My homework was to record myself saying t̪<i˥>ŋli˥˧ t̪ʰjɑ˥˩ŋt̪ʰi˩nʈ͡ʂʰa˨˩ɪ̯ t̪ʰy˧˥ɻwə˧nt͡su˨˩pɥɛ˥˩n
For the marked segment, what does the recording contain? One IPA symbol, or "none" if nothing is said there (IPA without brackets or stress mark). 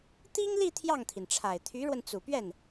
i˥